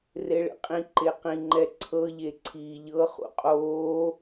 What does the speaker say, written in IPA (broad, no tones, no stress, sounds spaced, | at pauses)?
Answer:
r e ɭ ḛ qʼ ĩ ǃ e q ĩ ŋ͡ǃ ɛ ǀʰ ɤ ʎ e ǀʰ iː ʎ ɤ χ ṵ qʼ oː